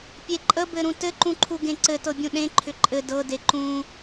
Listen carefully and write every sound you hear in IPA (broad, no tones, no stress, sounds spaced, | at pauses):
pʲ e ǃʼ ə b ɘ ɾ ũ t ɘ ǃ ũ ǃʰ u ɡ ẽ ǀ ɘ t ɤ bʲ ũ ɗ ẽ ǃʰ ʏ ǃʼ ɘ d ɤ d e ǃ ũ